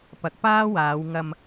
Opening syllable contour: rising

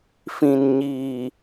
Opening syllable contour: low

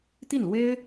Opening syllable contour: falling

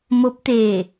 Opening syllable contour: rising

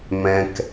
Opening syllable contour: low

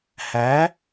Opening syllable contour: rising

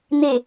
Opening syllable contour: low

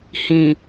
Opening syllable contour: low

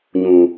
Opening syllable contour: low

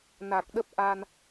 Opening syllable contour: low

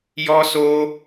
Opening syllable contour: high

